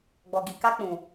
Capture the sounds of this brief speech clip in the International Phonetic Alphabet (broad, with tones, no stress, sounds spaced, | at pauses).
ɡ͡b ɔ˨ ɡ i˨ k a˧ k͡p ũ˨